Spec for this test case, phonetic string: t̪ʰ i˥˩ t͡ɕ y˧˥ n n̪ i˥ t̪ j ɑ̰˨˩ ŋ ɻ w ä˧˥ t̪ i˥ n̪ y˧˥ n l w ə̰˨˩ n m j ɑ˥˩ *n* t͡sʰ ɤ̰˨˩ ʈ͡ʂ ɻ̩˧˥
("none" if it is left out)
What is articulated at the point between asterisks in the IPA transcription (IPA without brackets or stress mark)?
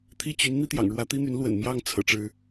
ŋ